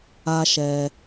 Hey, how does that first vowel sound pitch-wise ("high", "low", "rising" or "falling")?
high